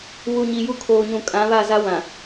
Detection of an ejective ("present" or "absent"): present